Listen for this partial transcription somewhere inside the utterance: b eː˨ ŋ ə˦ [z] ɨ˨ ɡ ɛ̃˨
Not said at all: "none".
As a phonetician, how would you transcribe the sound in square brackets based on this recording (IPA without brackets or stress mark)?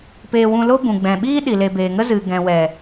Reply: z